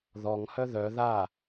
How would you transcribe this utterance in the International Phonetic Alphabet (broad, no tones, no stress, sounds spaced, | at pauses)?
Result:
ð ɔ ŋ h œ ð œ ð a